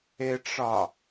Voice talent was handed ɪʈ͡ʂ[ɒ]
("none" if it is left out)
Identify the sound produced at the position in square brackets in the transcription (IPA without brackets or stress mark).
ɒ